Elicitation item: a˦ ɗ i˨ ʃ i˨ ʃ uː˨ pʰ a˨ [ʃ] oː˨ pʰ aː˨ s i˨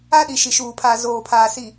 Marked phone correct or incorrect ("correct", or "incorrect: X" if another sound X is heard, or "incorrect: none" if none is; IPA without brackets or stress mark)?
incorrect: z